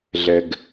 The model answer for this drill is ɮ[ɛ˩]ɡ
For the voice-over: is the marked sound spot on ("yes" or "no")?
yes